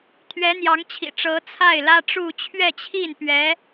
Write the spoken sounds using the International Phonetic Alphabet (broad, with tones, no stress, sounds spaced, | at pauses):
t̪ʰ ɥ ɛ˧˥ n̪ j ɑ˧˥ ŋ t͡ɕʰ ḭ˨˩ ʈ͡ʂ ɤ˧˥ t͡sʰ a˥˩ ɪ̯ l ä˥ ʈ͡ʂ u˥˧ t͡ɕʰ ɥ ɛ˥˧ t͡ɕʰ i˥˩ n p ɥ ɛ˧˥